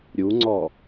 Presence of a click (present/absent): present